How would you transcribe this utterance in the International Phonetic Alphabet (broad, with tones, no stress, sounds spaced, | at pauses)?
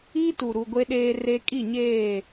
i˦ t u˨ ɾ u˨ ɡʷ e˦ ɗ eː˦ r e˦ kʼ i˦˨ ɲ eː˦˨